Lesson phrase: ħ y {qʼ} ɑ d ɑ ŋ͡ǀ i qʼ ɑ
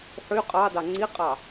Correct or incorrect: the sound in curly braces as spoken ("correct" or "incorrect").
correct